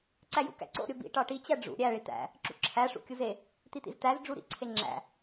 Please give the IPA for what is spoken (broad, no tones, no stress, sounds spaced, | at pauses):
ǀ æ j ṵ k æ̰ ǀ o̰ ɾʲ o b ḭ ʈ ɒ ʈ i t͡ɕ æ ɖ͡ʐ ṵ ɾʲ æ ɭ i t̪ æ̰ | ǁ ṵ ǁʰ æ ʂ ṵ kʲ u z e | t̪ i t̪ ḭ z t̪ æ z ɖ͡ʐ u ɾ ḭ ǀʰ e ŋ͡ǁ æ̰